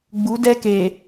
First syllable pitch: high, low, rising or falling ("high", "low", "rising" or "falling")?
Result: rising